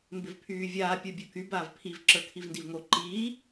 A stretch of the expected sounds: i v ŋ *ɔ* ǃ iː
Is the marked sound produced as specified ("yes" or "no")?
no